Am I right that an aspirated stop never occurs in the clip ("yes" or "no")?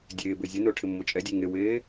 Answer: no